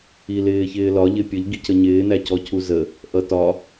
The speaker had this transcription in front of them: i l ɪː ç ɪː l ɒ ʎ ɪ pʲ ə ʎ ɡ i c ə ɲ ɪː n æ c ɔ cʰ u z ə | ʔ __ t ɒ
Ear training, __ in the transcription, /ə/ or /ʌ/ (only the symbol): ʌ